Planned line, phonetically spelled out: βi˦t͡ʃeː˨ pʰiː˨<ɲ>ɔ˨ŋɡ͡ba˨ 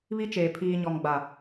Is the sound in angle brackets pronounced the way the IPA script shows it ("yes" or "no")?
yes